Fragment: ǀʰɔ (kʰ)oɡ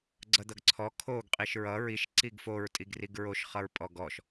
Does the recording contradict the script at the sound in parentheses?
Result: no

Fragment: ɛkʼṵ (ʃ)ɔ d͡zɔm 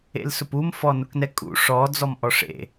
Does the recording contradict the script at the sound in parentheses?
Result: yes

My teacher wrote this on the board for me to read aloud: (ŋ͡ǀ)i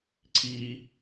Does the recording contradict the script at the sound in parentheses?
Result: yes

